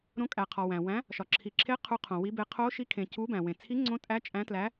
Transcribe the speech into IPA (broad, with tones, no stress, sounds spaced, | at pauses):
ɾ õ˨˥ kʼ æ˩ qʰ ɒ˩ w æ̃˩ w æ̃˨˥ | ʃ ɒ˩ ǁʰ i˩ ǁʰ e˨˥ qʰ u˨˥ qʰ õ˩ w i˨˥ b e˨˥ qʰ o˨˥ ʃ i˨˥ kʰ ẽ˩ c u˨˥ b æ̃˩ w ẽ˩ t͡sʰ i˨˥ ŋ͡ǀ õ˨˥ tʼ æ˨˥ t͡ʃʼ æ̃˨˥ t l æ˨˥